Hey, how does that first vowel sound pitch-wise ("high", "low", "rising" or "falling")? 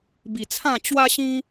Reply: low